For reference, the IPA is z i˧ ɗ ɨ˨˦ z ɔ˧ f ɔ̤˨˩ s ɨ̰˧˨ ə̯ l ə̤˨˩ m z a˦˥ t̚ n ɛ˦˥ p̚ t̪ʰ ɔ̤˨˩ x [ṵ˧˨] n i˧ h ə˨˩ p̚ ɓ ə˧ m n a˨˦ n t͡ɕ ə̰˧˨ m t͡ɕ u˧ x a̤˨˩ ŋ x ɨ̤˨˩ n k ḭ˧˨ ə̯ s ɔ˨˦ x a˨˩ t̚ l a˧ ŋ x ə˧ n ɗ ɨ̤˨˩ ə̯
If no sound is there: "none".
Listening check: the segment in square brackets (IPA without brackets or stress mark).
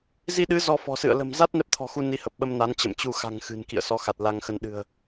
u˧